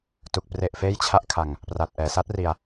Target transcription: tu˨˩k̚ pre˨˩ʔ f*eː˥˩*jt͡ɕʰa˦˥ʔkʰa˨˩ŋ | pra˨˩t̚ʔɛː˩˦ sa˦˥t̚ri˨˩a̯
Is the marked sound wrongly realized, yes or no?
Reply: no